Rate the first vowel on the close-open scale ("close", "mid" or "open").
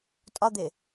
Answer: open